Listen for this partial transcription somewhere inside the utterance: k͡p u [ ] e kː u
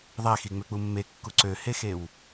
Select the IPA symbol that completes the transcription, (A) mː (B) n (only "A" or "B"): A